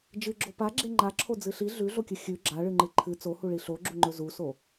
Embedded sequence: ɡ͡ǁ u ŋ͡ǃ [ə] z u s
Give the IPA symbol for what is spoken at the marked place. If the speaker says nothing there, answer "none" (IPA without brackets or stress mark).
ɵ